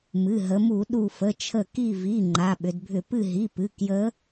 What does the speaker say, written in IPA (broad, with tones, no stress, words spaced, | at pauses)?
mɨ˩˧˩ɦə˩˧mu˧˩˧ ɗu˧˩fə˩˧˩t͡ʃʰə˧˩ ki˧˩vi˩˧˩ ŋ͡ǃa˩˧˩ɓʏ˩˧dbʱʏ˧˩˧ pɨ˧˩ɦi˩˧˩pɨ˩˧˩ kjə˧˥